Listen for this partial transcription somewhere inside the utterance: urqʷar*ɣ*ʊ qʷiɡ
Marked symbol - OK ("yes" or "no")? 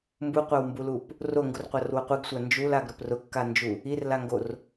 no